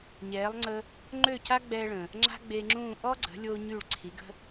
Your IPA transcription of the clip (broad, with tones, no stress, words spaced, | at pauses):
ɲɛː˩˥lˠ ŋ͡ǀə˧ | ŋ͡ǃø˥˩ca˥ɡ͡bɛː˧ɭə̃˩ | ŋ͡ǁa̤˥ɡ͡be˧ŋ͡ǁũː˥˩ ʔɔ˥ ɡ͡ǀə̤˩˥ lʲo˧ ɲy˥˩ɭ ǀʰi˩˥ɡə̤˥